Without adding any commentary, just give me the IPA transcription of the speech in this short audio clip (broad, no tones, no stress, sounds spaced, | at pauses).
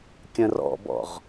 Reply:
kʲ ə̃ r ɔ̰ b ɔ̰ ʁ